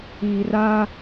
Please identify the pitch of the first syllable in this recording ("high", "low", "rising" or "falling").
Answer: low